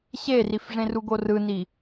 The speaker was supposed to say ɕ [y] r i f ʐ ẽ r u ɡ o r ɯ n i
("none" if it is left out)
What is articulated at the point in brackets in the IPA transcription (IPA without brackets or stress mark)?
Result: e